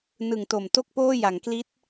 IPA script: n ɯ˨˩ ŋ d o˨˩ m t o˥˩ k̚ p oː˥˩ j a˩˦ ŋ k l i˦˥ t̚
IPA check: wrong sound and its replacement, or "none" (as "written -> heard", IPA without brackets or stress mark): d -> t